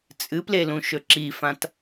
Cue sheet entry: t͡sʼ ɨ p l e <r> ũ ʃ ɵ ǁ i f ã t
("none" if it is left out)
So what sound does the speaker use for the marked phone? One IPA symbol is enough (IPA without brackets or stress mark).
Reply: l